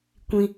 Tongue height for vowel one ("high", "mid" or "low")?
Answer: high